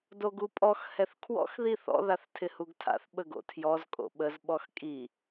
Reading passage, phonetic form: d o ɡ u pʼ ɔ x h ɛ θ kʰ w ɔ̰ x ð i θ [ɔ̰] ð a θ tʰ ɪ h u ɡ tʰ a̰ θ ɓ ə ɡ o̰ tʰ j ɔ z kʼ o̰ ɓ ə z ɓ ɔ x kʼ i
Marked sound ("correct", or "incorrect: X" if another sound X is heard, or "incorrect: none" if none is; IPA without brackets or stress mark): correct